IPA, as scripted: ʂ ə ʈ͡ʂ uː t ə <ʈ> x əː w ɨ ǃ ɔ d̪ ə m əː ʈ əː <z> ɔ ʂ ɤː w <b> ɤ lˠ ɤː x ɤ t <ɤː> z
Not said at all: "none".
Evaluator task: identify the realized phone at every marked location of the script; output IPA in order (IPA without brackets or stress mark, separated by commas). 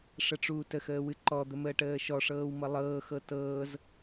none, ʃ, m, ɤː